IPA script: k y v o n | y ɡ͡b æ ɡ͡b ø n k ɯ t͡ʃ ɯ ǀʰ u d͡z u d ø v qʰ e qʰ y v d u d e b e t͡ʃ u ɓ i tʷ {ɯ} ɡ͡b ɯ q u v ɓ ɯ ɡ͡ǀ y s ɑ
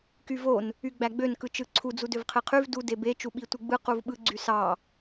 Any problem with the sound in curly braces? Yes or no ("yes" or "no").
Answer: no